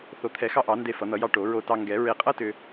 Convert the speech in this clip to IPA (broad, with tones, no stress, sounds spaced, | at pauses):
θ o˨˩˦ t̪ʰ ɛ˨˩˦ x ɑ˧ ʔ ɑ˨˩˦ n d e˧ f ʌ˨˩˦ n̪ ʌ˨˩˦ j ɑ˧ ʈ o˨˩˦ ɹ o˧ t ɑ˧ ŋ ɡ ɛ˨˩˦ ɹ e˧ qʼ ʌ˥ t ʏ˧